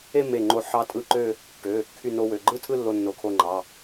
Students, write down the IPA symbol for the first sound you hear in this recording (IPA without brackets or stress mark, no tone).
e